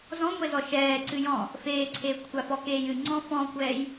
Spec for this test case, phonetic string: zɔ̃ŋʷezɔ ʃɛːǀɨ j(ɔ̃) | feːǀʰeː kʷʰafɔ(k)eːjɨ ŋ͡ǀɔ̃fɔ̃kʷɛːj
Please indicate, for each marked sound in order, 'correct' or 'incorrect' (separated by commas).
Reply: correct, correct